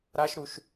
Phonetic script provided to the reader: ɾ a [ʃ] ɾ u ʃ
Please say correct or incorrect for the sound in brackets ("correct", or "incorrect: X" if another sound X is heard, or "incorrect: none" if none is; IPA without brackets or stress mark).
correct